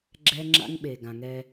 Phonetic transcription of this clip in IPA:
ɡ͡ǁ ɛ˦ ŋ͡ǁ a̰˦ ŋ ɓ e˨ ɡ ã˨ ŋ ɛ˦

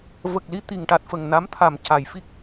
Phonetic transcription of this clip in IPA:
v ə˨˩ k̚ l i˧ t̪ i˨˩ ŋ ʈ a˨˩ t̚ f ə˨˩ ŋ n a˧˥ m t̪ʰ a˨˩ m c a˨˩˨ j f i˦˥ k̚

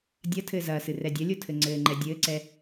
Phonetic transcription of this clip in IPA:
dʲ ɐ tʰ ɘː z ɐː s ɨ r ɛ dʲ ɐ lʲ o tʰ ɘ ŋ͡ǀ ɘː ŋ͡ǃ ɛ dʲ ɘː ǀ ɛ

